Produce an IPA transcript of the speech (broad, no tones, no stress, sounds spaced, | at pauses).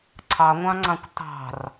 ǀʰ ɑ ŋʷ ɑ̃ ŋ͡ǀ ɑ̃ kʷ t ɑ̤ r